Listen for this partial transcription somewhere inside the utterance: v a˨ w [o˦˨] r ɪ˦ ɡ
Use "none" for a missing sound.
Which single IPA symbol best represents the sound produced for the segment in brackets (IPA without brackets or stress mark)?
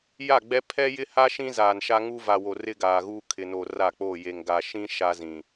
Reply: o˨